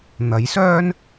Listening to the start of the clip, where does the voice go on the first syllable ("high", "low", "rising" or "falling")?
rising